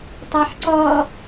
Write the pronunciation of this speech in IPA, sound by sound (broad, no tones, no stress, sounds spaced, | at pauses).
tˤ ɑ ħ ǀ ɔ